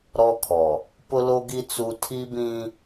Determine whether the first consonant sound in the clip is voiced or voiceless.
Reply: voiced